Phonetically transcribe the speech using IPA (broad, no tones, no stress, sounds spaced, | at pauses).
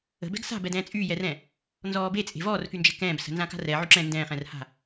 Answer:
ə̤ b ɛ̤ ɡ s a̤ b ɛ d ɛ̃ː t͡sʼ yː j ɛ r ɛ̃ | n z ɔː b e t͡sʼ e̤ v ɔː r k y n d͡ʒ ɛ̤ k ɛ̃ː b s ə̤ n z ã k a̤ r ɛ ʕ y ǁ ɛ̃ n d ɛ̃ː χ ɛ̃ r h a̤